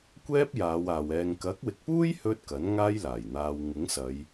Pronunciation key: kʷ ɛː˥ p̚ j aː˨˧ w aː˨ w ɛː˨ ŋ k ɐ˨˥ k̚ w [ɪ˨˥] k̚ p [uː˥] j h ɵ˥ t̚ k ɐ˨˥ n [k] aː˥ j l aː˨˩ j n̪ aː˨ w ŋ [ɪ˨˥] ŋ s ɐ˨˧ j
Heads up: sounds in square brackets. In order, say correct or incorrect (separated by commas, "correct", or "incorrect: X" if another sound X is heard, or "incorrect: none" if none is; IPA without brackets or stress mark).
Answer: correct, correct, incorrect: ŋ, correct